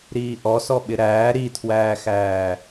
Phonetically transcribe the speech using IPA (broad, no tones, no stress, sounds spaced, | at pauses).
ɾ iː ʔ ɔ s ɔ ɓ ɪ ɾ æː ɾ i tʰ w æː x æː